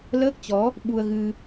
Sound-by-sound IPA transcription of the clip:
l əː˦˥ k̚ t͡ɕ ɔ˨˦ | ɓ u˧ ə̯ ɣ ɨ˧

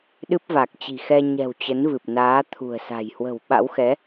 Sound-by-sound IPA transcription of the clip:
ɗ ɨ˦˥ p̚ v a˨˩ k̚ t͡ɕ i̤˨˩ x ɛ˧ ɲ ɛ̤˨˩ w t͡ɕ ə˨˦ n v ɨ˨˩ p̚ n aː˨˦ t̪ʰ ṳ˨˩ ə̯ s a̤˨˩ j h w ə̤˨˩ w ɓ a̰˧˥ w x ɛ˨˦

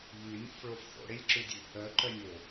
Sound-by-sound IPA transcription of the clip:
ʎ ʉ nʲ o̰ f ɭ o f θ o̰ ɽ e lʲ ǁ ʉ dʲ ʉ | œ ǃ œ nʲ o

